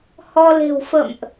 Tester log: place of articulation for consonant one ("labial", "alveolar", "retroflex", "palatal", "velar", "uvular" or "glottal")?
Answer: glottal